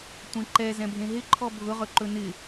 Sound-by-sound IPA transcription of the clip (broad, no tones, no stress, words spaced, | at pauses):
tʷẽǃɛ zɛ̃bʱẽɦɪ ǃʰɔbʱʊʁɵ ǃɵnɪ